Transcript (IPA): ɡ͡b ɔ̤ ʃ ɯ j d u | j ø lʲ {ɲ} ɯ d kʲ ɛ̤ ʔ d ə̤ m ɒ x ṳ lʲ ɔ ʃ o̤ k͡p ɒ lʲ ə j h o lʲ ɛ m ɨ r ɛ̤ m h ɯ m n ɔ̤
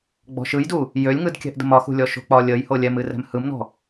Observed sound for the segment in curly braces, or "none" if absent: ŋ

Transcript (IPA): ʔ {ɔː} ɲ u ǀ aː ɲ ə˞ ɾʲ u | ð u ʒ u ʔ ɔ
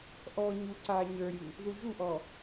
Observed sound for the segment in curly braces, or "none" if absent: ɔː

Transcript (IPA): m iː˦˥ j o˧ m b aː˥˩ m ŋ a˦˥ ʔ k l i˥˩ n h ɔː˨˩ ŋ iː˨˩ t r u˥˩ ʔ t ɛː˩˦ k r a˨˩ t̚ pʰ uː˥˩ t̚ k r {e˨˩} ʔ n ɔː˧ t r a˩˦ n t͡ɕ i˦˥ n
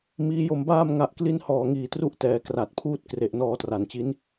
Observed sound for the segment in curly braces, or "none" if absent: e˨˩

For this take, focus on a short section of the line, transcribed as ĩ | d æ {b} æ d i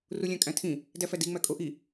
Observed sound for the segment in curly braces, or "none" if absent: f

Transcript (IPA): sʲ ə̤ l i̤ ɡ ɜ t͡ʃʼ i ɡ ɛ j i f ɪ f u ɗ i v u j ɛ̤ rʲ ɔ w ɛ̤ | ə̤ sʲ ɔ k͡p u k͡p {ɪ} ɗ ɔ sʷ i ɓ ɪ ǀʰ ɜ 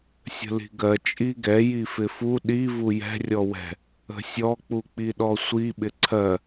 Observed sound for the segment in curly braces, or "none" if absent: i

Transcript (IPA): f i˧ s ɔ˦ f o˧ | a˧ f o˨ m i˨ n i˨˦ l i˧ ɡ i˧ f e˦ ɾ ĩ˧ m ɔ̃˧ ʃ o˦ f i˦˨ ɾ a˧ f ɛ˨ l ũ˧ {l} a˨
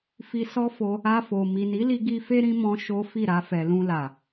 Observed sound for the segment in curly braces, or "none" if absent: l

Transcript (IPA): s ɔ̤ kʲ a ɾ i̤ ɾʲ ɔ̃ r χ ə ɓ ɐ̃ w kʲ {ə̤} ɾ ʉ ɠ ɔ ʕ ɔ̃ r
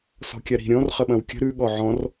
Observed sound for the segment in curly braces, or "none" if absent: ə̤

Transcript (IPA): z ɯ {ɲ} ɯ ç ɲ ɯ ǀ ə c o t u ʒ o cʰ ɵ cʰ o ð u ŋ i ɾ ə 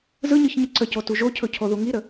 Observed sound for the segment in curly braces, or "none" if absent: ɲ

